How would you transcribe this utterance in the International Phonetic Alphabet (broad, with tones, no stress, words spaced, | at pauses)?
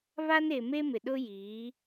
βa˦ne˨ me˦mɪ˨ɗʊ˦ jiː˨˦